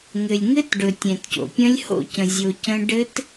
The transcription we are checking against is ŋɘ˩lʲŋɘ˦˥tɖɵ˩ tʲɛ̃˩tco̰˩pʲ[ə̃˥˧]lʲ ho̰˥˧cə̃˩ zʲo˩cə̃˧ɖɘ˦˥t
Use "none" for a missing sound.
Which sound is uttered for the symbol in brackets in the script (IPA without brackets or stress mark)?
ə̃˦˥